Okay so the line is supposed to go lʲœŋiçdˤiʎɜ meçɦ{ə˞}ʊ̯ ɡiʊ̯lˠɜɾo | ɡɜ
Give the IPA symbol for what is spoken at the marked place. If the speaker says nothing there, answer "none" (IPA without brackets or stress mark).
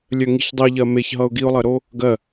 ʌ